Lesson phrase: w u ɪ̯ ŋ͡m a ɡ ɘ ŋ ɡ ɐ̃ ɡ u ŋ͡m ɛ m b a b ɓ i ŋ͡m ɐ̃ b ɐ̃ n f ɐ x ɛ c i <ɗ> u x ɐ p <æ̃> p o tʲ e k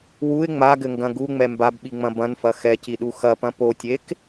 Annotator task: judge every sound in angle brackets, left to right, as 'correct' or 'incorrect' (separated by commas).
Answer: correct, incorrect